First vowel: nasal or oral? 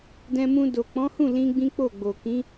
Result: nasal